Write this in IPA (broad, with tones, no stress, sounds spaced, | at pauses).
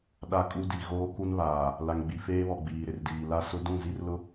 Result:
ɗ a˦ kʼ u˦ d i˨ ɣ oː˦ k u˦ n β aː˨ | l a˨ ŋ ɡ͡b i˨ f eː˦ β ɔ˨ ɡ͡b iː˨ ɾ ɪ˨ r d iː˨ l a˦ s ʊ˦ d ũ˦˨ z i˦ r l ʊ˦